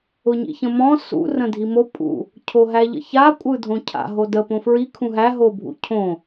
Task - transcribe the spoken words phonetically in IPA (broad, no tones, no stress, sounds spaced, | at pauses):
ʊ ɲ ḭ ç ə̃ m ɔ̃ s ṵ r ə̃ dʱ i m o pʼ ṵ | cʰ o ɦ æ ʎ ə̰ ç a kʷʼ ɯ dʱ õ cʰ a̰ ɦ o d ə p õ f ɹ i kʰ ũ ɦ æ ɦ o bʱ ṵ cʰ õ